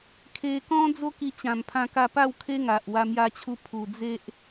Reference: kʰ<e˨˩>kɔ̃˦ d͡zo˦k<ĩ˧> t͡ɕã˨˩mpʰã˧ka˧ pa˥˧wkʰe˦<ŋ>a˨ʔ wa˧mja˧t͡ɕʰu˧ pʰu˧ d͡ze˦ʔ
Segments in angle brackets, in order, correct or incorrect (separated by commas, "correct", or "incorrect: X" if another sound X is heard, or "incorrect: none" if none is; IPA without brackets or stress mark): incorrect: e˧, incorrect: i˧, correct